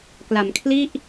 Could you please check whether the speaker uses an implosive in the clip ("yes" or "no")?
no